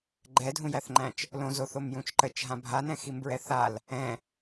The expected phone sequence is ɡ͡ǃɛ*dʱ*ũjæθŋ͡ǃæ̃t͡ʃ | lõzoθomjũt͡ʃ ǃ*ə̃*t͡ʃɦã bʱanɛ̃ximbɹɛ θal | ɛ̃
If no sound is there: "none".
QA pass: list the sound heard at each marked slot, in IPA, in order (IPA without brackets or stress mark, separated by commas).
dʱ, ə